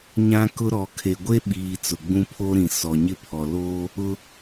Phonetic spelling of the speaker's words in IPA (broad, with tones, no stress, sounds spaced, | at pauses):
ɲ ã˦ k ʊ˦ ɾ ɔ˨ kʰ e˨ ɡʷ e˦ ɓ iː˨ t͡s ʊ˨ ɡ͡b ũ˦ pʰ o˦ ɾ ĩ˨ s ɔ˨ ɲ ɪ˦˨ pʰ ɔ˨ l oː˦ | ʊ˦